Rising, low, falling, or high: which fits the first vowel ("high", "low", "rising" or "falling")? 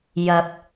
low